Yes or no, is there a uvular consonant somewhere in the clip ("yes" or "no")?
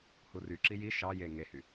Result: no